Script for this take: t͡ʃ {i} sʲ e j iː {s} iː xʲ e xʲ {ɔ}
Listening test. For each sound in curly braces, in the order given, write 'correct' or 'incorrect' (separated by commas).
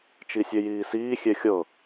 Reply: correct, correct, incorrect